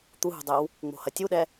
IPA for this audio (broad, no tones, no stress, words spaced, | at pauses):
t̪uɦṳdˤew | ŋ͡mo̤hɐtʲuɗɛ